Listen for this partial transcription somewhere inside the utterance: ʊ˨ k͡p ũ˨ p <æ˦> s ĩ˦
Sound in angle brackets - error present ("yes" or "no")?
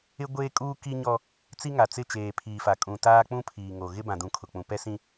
yes